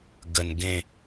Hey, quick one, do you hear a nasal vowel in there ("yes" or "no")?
yes